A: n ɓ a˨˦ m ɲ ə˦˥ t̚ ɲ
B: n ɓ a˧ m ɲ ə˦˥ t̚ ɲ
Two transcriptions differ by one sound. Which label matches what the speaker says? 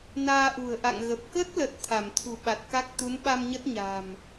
B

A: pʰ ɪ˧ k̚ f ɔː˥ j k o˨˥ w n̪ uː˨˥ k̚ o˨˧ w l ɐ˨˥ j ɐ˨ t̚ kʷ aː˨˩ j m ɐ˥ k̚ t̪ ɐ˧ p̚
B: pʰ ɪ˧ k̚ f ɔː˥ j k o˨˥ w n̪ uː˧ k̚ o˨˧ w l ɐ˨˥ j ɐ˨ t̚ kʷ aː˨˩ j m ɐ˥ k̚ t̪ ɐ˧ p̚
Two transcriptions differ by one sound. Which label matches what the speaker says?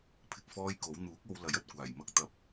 A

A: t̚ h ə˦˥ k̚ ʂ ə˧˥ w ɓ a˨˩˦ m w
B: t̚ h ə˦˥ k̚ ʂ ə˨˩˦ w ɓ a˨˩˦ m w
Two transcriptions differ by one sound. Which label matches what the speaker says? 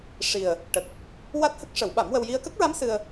B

